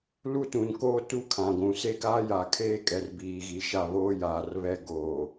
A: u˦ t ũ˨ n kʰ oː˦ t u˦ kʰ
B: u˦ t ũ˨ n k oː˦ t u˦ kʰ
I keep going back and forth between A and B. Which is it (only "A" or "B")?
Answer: B